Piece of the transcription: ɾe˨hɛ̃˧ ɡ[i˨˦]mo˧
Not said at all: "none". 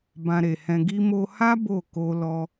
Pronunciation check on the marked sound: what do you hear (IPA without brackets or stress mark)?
i˧